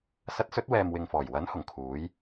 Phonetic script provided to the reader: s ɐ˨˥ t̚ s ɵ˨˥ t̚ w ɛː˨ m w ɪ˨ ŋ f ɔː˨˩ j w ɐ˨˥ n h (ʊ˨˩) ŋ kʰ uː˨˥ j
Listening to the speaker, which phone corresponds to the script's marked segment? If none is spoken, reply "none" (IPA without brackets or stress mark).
ʊ˨˩